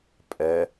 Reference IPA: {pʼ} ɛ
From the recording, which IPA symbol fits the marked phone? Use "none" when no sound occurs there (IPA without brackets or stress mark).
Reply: pʼ